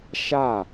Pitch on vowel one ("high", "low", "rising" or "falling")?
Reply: falling